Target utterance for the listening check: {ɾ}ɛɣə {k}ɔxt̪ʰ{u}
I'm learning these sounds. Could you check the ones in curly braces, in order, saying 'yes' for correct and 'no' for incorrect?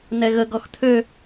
no, no, no

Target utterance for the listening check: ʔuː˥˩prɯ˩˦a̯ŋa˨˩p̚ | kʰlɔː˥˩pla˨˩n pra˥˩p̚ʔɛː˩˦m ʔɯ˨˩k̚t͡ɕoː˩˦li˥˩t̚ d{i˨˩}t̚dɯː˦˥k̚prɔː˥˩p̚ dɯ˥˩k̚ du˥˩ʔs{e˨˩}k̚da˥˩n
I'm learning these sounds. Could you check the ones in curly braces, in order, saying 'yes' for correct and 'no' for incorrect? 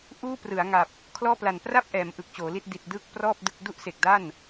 yes, yes

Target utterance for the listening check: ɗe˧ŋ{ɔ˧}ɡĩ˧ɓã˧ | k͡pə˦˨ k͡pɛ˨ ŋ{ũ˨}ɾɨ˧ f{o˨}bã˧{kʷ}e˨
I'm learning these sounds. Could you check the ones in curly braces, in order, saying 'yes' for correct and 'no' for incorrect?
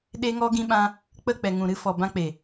yes, yes, no, no

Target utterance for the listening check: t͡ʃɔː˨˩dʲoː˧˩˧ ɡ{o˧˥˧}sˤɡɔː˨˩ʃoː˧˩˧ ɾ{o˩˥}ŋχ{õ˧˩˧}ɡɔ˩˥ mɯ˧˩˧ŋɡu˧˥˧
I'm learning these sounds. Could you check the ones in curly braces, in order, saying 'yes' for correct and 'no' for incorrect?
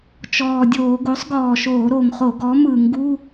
no, no, no

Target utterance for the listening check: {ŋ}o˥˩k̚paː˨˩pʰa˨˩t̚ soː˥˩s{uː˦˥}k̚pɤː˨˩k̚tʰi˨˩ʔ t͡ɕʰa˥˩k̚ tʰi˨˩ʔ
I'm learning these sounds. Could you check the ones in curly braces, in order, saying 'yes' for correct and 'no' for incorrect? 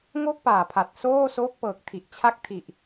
yes, no

